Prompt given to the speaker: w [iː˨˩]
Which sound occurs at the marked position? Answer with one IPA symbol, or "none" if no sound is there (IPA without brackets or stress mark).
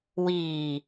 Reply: iː˨˩